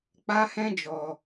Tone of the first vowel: high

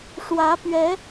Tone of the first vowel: rising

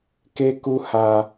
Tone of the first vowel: high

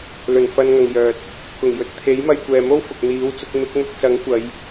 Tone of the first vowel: low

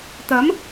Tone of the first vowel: rising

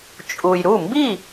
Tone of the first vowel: low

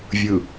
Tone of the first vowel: low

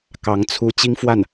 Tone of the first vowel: rising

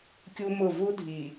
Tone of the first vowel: high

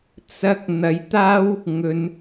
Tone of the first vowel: high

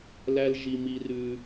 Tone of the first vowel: high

